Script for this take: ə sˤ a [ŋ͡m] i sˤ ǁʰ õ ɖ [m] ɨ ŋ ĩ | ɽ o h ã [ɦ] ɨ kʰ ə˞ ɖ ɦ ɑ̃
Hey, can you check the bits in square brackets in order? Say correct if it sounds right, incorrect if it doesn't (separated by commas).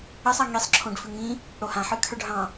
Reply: incorrect, incorrect, incorrect